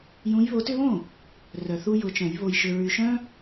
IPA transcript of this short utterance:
j ũ˨˦ j β o˨˦ t ʏ˦ β õ˥˩ | r œ˨ θ u˦ j ʊ˨˦ t͡ʃ œ̃˨˩˦ j β o˨ j ʃ ʏ˨ ɹ y˨ ʃ œ̃˦

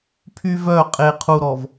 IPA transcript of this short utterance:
pʰ y˦ v œ˦˨ qʼ e˨ qʰ u˨ ɾ ɔ˨ v

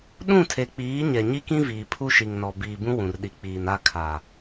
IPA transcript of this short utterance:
ɗ ũ˦˨ tʰ e˨ k͡p iː˨˦ ɲ ɛ˨ ɲ i˦ k ĩ˦ v iː˨ pʰ u˦ ʃ i˨ ŋ n ɔ˨ b iː˨ b ũ˦ w ũ˨ r ɗ i˨ k͡p iː˨ n a˦˨ kʰ a˨

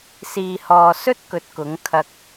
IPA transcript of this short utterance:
s iː˨ h ɔː˨ s ɵ˥ t̚ k ɵ˨˥ t̚ k ʊ˨˥ ŋ kʰ ɐ˧ k̚

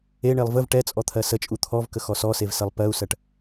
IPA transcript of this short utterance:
e ɳ e lˠ v ə v ʈ ɛ t͡sʼ ɔ t̪ʰ ɜ s ə t͡ʃʼ u t̪ʰ ɔ v k ə x ɔ s ɔ s e v s ɜ lˠ p ɜ u̯ s ɜ ʈ

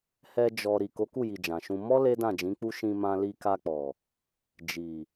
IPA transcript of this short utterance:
h ɛ˧ d͡ʒ ɔ˨ ɾ i˨ k o˨˦ k u˦˨ j i˨ d͡ʒ ã˨ ʃ ũ˧ m ɔ˦ l e˦ d ã˦˨ d͡ʒ ĩ˨˦ k͡p u˦ ʃ ĩ˧ m ã˧ l i˧ k a˧ k͡p ɔ˨ | d͡ʒ i˨

